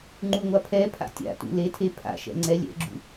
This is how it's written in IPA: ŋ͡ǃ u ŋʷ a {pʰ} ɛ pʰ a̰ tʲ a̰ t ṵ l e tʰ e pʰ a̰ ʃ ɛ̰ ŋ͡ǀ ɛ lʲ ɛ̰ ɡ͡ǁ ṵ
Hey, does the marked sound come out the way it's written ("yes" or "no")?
yes